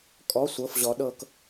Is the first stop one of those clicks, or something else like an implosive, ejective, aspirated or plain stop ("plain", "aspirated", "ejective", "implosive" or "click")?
ejective